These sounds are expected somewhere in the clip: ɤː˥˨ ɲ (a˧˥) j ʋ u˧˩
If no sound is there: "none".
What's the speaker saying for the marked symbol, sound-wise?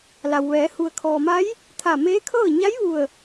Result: a˧˥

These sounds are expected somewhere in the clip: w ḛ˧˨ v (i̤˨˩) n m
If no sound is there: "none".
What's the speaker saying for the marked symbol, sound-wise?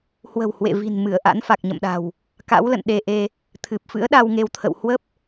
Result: i̤˨˩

